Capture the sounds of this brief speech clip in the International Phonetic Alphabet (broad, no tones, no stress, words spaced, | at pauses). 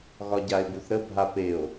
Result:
ɣɒɟae̯buθɾə bʱapeo̯